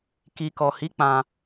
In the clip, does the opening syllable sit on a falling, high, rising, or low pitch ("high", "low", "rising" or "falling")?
low